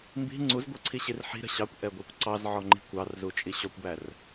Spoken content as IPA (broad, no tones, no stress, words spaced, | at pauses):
mbi̤ ŋ͡ǀuzɡʷə˞ǀʰiɕir ħi̤ɾə̤ ɕɑkʷʔɛɡʷɛkʷ ǀɑzʕɔŋ͡ǃi̤ kʷɑrzut͡ʃʼi ɕɔkʷbær